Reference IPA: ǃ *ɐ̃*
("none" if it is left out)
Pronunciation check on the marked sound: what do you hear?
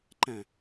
æ̃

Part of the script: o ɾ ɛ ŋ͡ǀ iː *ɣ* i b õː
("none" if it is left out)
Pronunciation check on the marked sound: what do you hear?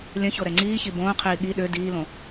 ç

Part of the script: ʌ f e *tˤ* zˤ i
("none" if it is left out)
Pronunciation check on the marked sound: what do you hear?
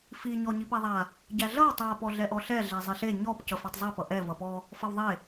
tˤ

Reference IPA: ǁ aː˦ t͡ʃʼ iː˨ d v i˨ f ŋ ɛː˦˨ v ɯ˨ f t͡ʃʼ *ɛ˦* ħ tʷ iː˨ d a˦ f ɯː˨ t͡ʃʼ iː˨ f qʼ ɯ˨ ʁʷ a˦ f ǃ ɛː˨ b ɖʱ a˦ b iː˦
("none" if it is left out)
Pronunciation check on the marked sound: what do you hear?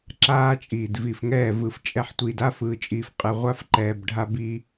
ɛ˦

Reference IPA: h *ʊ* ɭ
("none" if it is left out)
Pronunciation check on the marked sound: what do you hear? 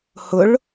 ʊ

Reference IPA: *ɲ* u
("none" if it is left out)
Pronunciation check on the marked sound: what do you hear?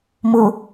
m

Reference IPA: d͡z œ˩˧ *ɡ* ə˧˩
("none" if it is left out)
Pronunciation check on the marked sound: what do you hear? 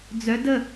d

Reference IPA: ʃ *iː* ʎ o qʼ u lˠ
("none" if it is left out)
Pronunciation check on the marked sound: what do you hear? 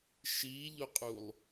iː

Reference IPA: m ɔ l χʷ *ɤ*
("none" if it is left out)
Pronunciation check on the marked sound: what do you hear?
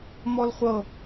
ɤ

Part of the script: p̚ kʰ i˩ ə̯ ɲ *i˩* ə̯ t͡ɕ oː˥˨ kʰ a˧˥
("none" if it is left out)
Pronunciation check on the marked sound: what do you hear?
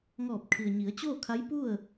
i˩˧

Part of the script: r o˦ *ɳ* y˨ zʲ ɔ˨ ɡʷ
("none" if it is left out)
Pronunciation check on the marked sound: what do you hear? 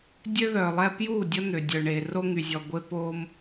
ŋ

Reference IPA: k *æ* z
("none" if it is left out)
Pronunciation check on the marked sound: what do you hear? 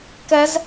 ɛ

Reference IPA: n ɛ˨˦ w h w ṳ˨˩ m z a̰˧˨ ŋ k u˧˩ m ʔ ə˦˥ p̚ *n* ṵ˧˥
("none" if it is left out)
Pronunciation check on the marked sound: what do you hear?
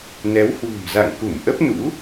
n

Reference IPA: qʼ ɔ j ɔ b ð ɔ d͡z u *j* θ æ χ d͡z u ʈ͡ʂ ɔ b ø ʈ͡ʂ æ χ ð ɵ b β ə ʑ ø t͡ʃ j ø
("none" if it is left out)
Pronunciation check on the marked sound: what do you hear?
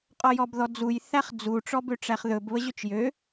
j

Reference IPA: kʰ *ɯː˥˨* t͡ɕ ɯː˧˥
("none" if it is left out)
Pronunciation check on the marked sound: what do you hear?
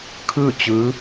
ɯː˥˨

